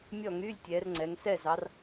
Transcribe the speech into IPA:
mʲ ɔ˥˨ ŋ y˧˥˧ lʲ tʲ ɛ˨˦ r ŋ͡ǀ ɛ˨˦ ŋ s ɛ˥˨ z ɑ˨˦ r

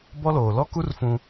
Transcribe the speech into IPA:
b ɔ˦ l oː˨ l ɔ˦ k u˦ r f ũ˦

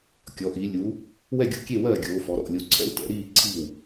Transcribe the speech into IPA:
kʲ ɔ˨˦ ʔ iː˨˦ lʲ u˨˦ | w ɛ˥˨ ɡʲ o̰˥˨ kʲ e˥˨ w ɜː˥˨ ɡʲ oː˨˦ f ɔ˨˦ ɾ ɔ̰˥˨ lʲ o˨˦ ǀʰ ɛ̰˥˨ w t ɛ̰˨˦ ɾ iː˥˨ ǀʰ i˥˨ w

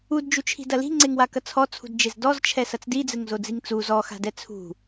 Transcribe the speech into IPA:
u d d͡ʒ u t͡ʃʰ i̤ d ɐ l i̤ ŋ͡ǀ e ŋ w a k ɐ t͡sʰ ɔ t͡sʰ ṳ d d͡ʒ e z d ɔ z t͡ʃʰ ɛ s ɐ t͡s d i d͡z ɘ ŋ z o d͡z i ŋ t͡s u z ɔ x a̤ d ɛ t͡sʰ ṳ

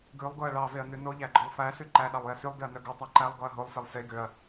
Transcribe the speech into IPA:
ɡ ʉ lˠ ɡ o ɐ̯ ɭ ɑ v e ɐ̯ n ʉ n o ʎ æ ɡ͡ǃ ɔ lˠ f æ s ʉ ǃ æ ɗ ɑ lˠ j ɛ s y lˠ d e ɐ̯ n œ ɡ o tˤ æ ǃ æ lˠ ɡ ɔ ɐ̯ ɦ o lˠ s e lˠ s e ɡ ø ɐ̯

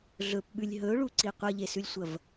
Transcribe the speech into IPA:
ɮ ɵ p ɓ ʉ lʲ ɦ ɵ ʊ̯ ɭ u ǀ i qʷ ɐ ʎ e s ʉ lʲ sʷ ɐ v

